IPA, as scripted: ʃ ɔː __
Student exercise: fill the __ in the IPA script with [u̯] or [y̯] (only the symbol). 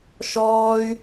y̯